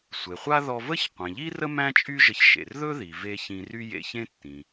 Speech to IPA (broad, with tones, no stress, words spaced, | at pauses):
sʷe˩χʷa˥ ðɔ˧və˥ç qʷẽ˩ʎi˥rə˥ mæ̃˥t͡ʃʼy˥ʒə˧ç ʃḛ˩rðɵ˥ði˩ve˧ çĩ˧ry˥jḛ˧çẽ˥ tːĩ˩